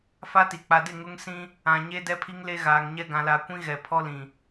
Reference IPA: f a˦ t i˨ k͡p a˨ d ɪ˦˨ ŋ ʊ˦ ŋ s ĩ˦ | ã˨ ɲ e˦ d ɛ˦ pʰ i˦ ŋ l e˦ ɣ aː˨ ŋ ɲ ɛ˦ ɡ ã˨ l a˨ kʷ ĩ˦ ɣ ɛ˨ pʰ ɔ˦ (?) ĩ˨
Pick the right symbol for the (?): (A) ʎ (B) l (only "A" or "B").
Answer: B